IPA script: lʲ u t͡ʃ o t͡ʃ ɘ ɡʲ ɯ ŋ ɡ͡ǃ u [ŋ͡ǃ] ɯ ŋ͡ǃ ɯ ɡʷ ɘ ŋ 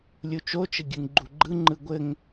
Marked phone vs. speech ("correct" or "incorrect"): incorrect